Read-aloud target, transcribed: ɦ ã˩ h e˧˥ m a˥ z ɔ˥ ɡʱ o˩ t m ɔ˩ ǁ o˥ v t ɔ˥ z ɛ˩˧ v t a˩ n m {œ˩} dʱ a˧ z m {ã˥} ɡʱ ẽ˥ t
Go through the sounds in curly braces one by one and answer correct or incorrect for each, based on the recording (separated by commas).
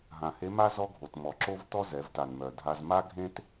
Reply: correct, incorrect